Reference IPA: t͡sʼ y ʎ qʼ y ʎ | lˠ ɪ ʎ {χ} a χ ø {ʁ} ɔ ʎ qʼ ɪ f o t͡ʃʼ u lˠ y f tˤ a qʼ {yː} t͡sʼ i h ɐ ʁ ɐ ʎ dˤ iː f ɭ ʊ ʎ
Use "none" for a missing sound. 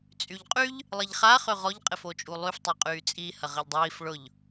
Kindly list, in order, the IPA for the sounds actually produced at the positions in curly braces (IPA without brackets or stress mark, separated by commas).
χ, ʁ, yː